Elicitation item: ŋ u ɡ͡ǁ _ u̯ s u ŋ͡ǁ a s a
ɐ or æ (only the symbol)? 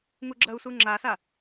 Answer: ɐ